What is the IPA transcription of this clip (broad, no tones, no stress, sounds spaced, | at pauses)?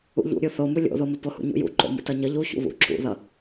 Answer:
ṵ ʎ ṵ ɾʲ u θ o m u lʲ o̰ ð o m ə p o h ṵ ɲ ṵ j ṵ ǃ o̰ m ṵ t ʌ ɲ ə ʎ u ç ṵ β ṵ ǁ ṵ ð ʌ